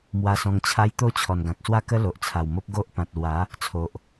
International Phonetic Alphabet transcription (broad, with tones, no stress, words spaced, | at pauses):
mwa˧sɔ̃˧ŋt͡ɕʰa˦j t̪o˥˧ t͡ɕʰɔ˨˩nɡã˨k̚swa˥˧kə˦ lo˨ʔt͡sʰa˨˩wmo˦p̚ ɡo˦ʔ pã˨t̚lwa˨˦ | t͡sʰo˨ʔ